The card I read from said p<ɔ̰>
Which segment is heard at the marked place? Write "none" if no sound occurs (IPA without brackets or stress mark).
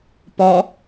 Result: ɔ